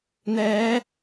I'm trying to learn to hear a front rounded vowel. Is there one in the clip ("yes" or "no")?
no